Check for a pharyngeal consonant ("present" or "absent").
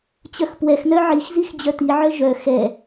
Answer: present